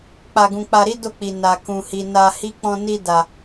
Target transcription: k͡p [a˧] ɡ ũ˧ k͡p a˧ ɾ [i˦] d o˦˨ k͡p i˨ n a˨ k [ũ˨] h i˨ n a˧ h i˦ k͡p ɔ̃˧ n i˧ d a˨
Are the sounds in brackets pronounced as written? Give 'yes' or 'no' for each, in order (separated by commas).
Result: yes, yes, yes